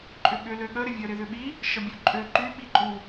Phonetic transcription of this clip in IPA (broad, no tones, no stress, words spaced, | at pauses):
ǃʼʏɠʏ løɠə ɾɪvʲə ɾɪðʏɓi | ʃəbʲuǃʼø ǃy ɓiǃʼu